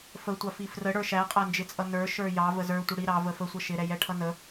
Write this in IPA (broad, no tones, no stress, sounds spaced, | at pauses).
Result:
f ə tʷ ɑ f i f r ə ɽ ə˞ ʃ æ qʼ æ n d͡ʒ ɪ t͡sʼ ʌ n ə˞ ʃ ə˞ j ɑ v ə z ə˞ tʷ ə ɽ i ɾ ɑ v ə f ə sʷ ʌ ʃ ɪ ɾ ɛ j ɛ ʈʰ ʌ n ə